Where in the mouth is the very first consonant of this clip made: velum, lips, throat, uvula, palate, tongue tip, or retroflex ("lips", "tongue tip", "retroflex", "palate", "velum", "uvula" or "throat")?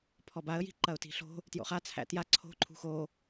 lips